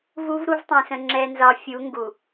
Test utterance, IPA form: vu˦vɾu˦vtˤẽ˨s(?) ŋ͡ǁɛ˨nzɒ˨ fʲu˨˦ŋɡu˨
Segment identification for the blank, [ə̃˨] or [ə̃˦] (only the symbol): ə̃˨